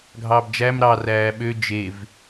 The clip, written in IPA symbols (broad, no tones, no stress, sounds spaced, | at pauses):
ɡʱ ɑː b d͡ʒ æ m ɾ ɑ r æː ɓ ø d͡ʒ e v